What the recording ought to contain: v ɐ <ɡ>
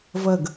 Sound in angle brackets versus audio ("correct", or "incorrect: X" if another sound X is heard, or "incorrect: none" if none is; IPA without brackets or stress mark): correct